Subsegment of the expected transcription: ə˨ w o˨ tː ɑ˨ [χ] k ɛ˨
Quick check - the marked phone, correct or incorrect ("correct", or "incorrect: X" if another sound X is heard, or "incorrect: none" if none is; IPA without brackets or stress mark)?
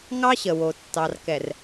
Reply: incorrect: r